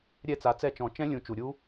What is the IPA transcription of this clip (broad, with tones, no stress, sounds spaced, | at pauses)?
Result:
ɾʲ ɛ˦˨ t͡s a˩˥ t͡s ɛ˦˨ t͡ʃ ɔ̃˨˩˦ t͡ʃ ɛ̃˦˥ lʲ ũ˨˩˦ t͡ʃ u˩ ɾʲ u˦˥